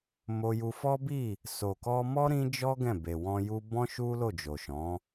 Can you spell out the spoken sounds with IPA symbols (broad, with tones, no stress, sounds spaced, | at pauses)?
m o˧ j u˧ f ɔ˦ b i˦˨ | s o˨ k ɔ˧ m ɔ˦ ɾ ĩ˦ d͡ʒ ɔ˦ ɡ ɛ̃˦˨ b e˨ w ɔ̃˧ j u˦ b ɔ̃˦ ʃ u˦ l o˦˨ d͡ʒ o˨ ʃ ɔ̃˨˦